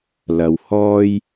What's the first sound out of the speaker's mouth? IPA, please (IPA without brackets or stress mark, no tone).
l